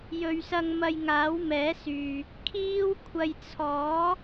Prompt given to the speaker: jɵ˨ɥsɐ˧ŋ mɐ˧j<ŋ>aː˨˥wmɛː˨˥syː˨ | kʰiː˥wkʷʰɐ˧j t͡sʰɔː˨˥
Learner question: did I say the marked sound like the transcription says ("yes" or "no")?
yes